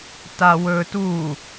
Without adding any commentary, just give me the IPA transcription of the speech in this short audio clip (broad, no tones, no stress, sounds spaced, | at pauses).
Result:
t a w ɵ t u